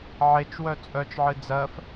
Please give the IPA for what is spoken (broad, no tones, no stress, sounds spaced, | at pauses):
ʕ e t͡ʃ w œ t͡sʼ œ t͡ʃ ʕ ɨ d͡z ɜ f